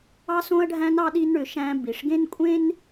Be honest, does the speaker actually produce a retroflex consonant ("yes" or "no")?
yes